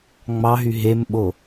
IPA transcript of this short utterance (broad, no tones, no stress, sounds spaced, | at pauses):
ŋ͡m ɑ ɦ y ɦ e m ɓ o